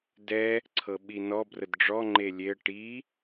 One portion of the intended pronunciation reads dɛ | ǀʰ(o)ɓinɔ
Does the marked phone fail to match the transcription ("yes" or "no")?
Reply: yes